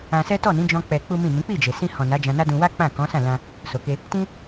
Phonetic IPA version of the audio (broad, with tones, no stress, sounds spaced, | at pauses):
ã˧ s ɛ˦ t ɔ˦˨ n ĩ˨˦ d͡ʒ ɔ̃˦ k͡p ɛ˧ k͡p u˦ m ĩ˦˨ n ĩ˨˦ k͡p i˦˨ d͡ʒ e˨ s ĩ˧ h ɔ̃˨ n a˨˦ d͡ʒ ã˧ n a˦ d ũ˧ w a˦ k͡p ã˦˨ k ɔ̃˨˦ s ã˦˨ l ã˧ | s o˨ k e˧ | t ĩ˦